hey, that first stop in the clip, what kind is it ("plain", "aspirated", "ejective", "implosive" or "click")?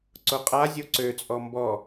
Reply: click